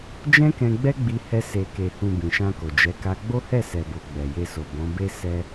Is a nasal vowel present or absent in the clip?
present